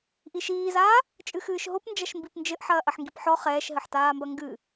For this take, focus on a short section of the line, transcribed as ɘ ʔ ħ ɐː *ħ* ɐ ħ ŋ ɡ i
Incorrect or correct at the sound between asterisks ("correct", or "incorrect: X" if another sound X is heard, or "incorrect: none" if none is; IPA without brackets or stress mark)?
incorrect: ʔ